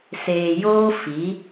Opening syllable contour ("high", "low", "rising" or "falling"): low